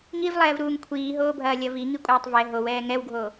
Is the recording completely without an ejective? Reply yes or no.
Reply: no